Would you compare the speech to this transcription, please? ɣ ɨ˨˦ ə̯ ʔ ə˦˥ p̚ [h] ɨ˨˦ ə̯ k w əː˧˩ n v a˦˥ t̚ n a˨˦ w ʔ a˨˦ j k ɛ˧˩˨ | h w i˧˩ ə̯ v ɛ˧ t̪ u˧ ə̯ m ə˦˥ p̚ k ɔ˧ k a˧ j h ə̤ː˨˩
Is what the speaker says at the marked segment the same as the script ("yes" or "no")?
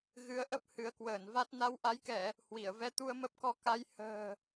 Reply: yes